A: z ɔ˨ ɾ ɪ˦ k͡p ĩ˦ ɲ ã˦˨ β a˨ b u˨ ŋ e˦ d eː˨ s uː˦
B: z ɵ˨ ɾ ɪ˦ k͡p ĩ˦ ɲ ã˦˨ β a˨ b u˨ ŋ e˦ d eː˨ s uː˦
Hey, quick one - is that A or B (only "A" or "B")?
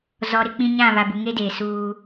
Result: A